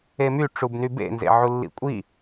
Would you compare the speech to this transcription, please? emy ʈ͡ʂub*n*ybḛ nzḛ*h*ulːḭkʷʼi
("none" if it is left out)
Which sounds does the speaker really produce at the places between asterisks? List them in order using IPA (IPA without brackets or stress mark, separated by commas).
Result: n, ʕ